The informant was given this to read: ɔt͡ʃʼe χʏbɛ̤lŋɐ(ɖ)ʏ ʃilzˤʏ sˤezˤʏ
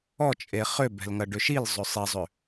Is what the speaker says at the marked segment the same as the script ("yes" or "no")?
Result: yes